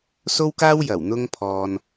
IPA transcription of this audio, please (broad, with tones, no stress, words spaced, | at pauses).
so˥wkaː˥wjɐ˨˩w n̪ʊ˧ŋpʰɔː˨n